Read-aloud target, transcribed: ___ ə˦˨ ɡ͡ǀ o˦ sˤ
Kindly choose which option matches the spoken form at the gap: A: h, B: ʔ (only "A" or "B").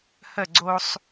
A